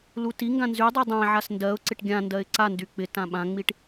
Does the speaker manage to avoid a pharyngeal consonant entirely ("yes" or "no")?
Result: no